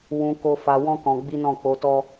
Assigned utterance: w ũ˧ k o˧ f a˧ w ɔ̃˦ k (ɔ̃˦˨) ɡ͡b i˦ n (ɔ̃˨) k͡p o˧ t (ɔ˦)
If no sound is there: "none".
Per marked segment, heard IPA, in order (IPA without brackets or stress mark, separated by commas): ɔ̃˧, ɔ̃˦˨, ɔ˦